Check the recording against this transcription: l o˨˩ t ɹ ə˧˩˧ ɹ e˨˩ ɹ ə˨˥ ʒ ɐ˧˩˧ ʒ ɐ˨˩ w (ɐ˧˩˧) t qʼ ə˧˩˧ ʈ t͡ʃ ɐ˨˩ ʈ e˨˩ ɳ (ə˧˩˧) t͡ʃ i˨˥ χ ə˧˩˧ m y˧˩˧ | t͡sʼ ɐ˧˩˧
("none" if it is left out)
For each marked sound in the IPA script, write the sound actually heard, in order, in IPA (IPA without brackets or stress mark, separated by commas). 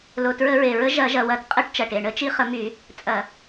ɐ˧˩˧, ə˧˩˧